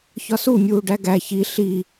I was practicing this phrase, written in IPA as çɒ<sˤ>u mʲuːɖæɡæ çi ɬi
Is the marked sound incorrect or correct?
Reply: incorrect